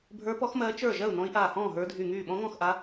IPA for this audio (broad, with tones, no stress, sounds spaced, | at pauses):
bʱ ə˞˧˥ p ɔ˧˥ x m ɜː˧˥ t͡ʃ ə˞˥˩ ʒ ɜ˥˩ u̯ n ɔ̃˧˥ i̯ ʔ aː˧˩ h ɔ̃ː˥˩ ɦ ə˞˧˥ dʱ y˧˩ ŋ yː˥˩ ɓ ɔ̃˧˥ ŋ ɔ̃˥˩ x ʔ a˧˥